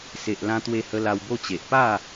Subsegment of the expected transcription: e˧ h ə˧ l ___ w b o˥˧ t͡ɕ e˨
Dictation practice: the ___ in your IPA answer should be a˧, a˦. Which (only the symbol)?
a˧